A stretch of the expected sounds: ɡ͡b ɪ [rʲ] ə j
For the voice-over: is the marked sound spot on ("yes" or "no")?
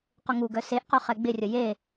yes